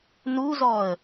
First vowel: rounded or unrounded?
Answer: rounded